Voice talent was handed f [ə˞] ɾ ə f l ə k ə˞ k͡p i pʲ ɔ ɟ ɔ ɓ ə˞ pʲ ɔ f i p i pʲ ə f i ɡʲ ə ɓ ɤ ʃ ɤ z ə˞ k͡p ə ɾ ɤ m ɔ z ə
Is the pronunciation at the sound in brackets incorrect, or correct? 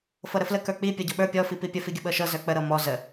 incorrect